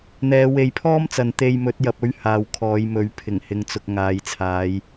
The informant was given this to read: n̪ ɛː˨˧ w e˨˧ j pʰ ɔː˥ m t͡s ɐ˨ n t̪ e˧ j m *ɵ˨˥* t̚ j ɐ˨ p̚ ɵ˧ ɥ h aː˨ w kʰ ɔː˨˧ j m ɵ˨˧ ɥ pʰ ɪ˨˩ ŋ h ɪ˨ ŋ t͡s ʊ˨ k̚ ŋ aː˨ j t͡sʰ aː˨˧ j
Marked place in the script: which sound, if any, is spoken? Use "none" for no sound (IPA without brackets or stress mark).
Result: ɵ˨˥